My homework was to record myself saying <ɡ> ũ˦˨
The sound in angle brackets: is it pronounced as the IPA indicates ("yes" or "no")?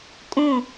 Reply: no